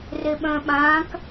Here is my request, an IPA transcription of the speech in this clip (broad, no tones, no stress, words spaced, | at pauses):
reɓœ̃ɓãk